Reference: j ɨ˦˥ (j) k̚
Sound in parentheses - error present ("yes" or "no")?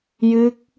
yes